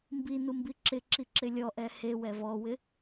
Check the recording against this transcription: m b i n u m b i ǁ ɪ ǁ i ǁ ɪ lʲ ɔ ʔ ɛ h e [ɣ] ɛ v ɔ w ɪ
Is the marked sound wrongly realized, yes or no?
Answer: yes